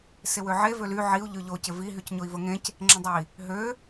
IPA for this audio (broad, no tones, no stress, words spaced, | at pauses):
sɪwøʕe vøly ʕiu̯ ʎyʎo cɪvi ɦycɲoi̯vəŋẽc | ŋ͡ǁə̃dˤoi̯ | ɦø